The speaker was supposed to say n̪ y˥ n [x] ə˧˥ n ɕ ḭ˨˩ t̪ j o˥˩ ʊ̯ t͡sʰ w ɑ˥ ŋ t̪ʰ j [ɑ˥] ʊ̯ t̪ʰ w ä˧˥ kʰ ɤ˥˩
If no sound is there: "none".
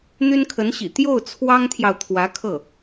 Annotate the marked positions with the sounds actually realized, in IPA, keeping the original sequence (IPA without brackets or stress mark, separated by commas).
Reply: kʰ, ɑ˨